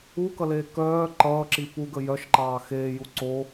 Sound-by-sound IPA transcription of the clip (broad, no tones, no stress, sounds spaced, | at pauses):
u k ʌ l eː k œː ǃ ʌː ǁ i p u ɡ ə j œ ʃ ǃ ɑː x eː j u ǀ o